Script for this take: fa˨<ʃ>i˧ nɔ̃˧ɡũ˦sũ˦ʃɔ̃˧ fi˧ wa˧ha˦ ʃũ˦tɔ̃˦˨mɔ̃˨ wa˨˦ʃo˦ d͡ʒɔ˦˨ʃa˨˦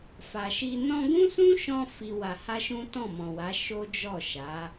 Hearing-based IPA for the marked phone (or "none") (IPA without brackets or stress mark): ʃ